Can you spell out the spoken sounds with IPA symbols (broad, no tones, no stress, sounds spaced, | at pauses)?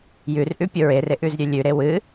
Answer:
j ʉ r ʔ ʉ pʲ o ɹ e r e ʔ ʉ z ɾʲ ʉ lʲ ʉ ɾ e w ɨ